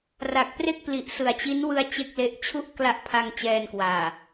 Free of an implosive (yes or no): yes